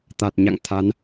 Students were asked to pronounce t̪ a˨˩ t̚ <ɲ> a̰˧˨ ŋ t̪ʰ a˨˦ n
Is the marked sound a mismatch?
no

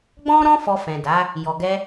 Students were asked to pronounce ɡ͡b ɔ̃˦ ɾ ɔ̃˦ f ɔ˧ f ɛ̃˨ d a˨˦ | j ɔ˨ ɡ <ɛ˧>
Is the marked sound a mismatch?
no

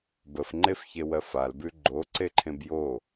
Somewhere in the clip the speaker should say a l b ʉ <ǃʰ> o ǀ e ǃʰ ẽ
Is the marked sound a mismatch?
yes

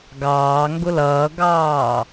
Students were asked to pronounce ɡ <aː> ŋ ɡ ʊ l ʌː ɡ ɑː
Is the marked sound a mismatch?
yes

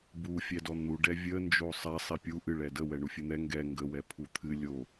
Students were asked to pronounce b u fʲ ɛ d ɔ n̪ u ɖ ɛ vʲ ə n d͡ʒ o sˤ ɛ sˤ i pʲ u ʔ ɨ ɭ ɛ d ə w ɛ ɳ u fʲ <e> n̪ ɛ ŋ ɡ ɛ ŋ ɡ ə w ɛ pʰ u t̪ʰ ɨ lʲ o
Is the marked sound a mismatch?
yes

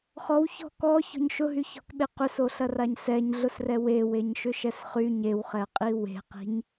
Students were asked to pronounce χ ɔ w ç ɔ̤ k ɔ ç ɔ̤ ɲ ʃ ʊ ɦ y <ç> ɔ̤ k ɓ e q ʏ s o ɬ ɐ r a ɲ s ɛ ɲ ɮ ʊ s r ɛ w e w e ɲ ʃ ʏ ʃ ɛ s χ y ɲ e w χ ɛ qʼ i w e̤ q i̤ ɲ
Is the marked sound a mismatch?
no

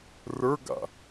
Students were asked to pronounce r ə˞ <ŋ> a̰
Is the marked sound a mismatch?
yes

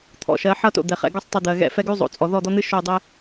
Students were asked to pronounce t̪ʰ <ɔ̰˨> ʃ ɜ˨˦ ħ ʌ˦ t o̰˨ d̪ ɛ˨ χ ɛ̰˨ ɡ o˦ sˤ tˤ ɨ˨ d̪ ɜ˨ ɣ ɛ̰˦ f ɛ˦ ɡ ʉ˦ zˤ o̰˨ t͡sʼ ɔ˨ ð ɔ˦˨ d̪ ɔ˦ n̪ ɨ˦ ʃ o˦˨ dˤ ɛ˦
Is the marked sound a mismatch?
no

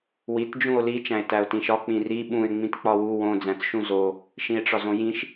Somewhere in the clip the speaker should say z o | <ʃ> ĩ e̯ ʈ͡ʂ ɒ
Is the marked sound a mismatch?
no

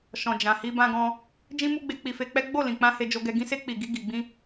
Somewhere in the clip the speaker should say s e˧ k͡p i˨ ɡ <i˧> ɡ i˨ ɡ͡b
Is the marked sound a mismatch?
no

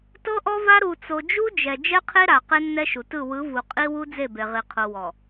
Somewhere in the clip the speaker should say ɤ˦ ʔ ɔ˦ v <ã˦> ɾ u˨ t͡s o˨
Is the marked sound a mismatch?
yes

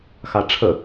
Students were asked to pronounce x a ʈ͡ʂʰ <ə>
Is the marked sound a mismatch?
no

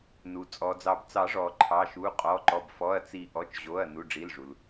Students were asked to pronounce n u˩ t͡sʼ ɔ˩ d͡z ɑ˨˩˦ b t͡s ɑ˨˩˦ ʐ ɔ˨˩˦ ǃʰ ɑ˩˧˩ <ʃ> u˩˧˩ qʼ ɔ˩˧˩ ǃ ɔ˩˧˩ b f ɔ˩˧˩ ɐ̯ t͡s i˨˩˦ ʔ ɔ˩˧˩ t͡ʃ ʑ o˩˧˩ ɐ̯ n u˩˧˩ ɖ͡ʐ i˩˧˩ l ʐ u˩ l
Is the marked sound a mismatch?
no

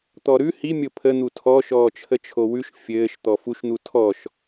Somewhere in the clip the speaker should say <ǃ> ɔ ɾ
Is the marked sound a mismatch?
yes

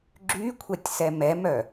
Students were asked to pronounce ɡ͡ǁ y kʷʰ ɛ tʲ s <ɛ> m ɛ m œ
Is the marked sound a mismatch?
no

